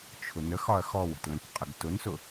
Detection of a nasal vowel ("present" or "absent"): present